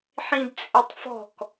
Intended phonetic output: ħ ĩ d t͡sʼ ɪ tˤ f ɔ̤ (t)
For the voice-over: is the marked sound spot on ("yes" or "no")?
no